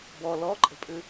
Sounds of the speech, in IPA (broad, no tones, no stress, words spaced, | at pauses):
bɔ lɔǃʼə̤pʼʉ